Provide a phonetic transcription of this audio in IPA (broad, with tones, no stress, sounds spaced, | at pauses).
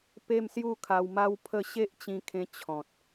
p e˥˧ m s j u˥˧ kʰ a˧ w m a˦ w pʰ ə˥˧ ɕ e˦ ʔ t͡ɕ ĩ˧ kʰ ẽ˧ t͡ɕʰ ɔ̃˨ t̚